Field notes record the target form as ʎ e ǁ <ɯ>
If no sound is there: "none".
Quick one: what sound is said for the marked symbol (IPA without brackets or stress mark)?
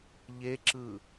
ɯ